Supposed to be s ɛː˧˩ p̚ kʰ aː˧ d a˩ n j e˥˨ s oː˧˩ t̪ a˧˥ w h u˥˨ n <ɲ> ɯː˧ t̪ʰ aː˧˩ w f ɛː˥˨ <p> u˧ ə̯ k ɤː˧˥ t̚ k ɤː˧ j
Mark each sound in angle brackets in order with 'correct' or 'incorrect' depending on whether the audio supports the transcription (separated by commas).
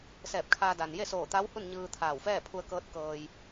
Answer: correct, incorrect